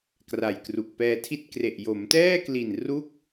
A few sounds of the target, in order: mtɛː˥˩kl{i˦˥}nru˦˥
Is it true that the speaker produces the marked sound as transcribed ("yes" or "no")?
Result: no